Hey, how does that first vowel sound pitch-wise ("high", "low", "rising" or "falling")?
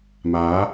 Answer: rising